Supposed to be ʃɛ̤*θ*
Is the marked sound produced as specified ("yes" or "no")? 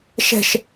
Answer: no